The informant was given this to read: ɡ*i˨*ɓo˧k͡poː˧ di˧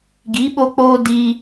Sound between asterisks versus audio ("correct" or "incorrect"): incorrect